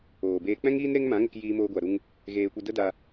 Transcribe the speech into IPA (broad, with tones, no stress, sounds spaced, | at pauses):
oː˨ b eː˧ k͡p ɛ̃˦ ŋ iː˦ n ɾ e˦ ŋ m ã˨˦ ŋ ə˧ k j iː˧ m oː˧ ɡʷ a˨ ɾ u˧ ŋ | ɣ eː˧ kʷ e˧ d ə˦ d a˧